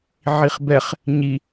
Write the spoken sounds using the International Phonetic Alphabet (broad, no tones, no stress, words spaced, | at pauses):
ʕiχbɛχ | ɲi